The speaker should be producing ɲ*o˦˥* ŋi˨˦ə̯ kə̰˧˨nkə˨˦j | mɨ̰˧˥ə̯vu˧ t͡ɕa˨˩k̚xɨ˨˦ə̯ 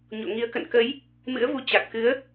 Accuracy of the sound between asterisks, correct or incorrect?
incorrect